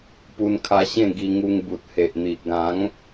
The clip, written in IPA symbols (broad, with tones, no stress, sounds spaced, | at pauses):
p u˧ n kʰ a˧ ɕ ẽ˥˧ ɡ i˧ ŋ u˧ ŋ b u˨ t̚ h e˨ ʔ n̪ i˨ ʔ ɡ ã˨˦ ŋ